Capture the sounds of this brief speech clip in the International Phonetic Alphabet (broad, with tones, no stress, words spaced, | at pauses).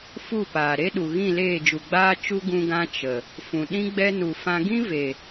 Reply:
fu˦˨paː˨ ɾe˦ɗu˨ɣĩ˦˨ leː˦˨d͡ʒu˨ɡ͡baː˦ t͡ʃu˦ ɡũ˧ɡã˧ t͡ʃə˨ | fũ˨ ɗĩ˦ɡ͡bɛ˦ nu˨fã˧ ɡĩ˦ve˨